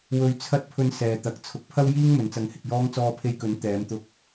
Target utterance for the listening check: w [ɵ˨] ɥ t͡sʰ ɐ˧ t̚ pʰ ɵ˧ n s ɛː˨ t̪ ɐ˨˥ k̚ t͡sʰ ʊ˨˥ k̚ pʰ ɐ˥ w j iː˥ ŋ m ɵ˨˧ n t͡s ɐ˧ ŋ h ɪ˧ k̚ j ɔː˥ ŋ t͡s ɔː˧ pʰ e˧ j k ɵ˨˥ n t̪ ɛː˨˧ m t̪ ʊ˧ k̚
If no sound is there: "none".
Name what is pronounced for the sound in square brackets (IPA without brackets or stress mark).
ɵ˨